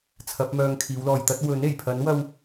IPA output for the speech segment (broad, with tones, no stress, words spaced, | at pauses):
t͡sʰɐ˨˥p̚mœː˧ŋ kʰiː˨˧wlɔː˨jt̪ɐ˥t̚ wɵ˨˥ne˨˩jpʰɐ˨˥nwɐ˧w